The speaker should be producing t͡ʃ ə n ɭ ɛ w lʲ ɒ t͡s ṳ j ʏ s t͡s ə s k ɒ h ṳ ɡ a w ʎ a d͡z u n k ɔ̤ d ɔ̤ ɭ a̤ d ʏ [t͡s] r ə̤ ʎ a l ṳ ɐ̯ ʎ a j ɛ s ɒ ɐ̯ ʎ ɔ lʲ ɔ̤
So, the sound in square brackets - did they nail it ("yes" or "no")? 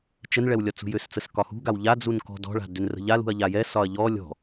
no